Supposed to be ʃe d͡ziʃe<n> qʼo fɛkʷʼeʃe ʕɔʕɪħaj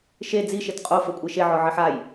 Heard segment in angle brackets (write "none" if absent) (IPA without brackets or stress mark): t